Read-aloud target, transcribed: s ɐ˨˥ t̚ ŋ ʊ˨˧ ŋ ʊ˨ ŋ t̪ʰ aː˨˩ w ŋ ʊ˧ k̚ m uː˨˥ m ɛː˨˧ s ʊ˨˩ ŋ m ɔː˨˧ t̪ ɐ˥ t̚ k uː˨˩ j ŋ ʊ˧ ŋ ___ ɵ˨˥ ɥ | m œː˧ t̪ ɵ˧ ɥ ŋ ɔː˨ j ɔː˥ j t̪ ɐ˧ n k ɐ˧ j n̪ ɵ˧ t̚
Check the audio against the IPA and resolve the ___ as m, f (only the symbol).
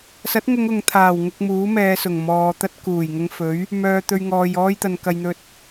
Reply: f